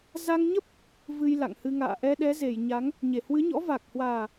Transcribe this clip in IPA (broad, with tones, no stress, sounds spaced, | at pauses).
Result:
z a˧ ŋ ɲ ə˦˥ p̚ | v ɨ˧ j l a̰˧˨ ŋ h ɨ˧ ŋ a̰ː˧˨ ʔ ɛ˧ ɗ ɛ˨˦ z e˧˩ j ɲ a˨˦ ŋ | ɲ e˧˩ h w ɨ˨˦ ɲ ɔ̰˧˥ v a˨˩ k̚ h w aː˨˩